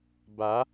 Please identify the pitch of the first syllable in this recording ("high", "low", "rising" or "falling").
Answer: rising